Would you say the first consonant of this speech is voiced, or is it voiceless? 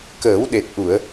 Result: voiceless